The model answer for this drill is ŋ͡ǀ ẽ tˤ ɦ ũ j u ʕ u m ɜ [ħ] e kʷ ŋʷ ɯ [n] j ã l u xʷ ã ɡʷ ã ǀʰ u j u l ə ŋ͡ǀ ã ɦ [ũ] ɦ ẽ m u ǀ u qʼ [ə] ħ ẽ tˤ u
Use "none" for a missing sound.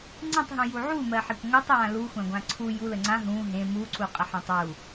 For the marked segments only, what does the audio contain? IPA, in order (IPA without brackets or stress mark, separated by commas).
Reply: ħ, tˤ, ũ, ə